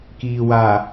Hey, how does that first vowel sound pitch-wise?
low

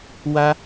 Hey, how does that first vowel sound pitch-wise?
high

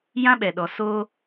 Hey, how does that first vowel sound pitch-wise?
high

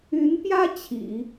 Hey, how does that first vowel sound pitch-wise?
rising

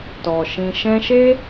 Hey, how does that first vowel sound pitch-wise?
low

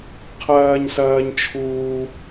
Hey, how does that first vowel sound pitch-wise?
high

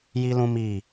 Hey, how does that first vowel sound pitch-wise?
high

